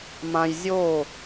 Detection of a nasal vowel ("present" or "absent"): present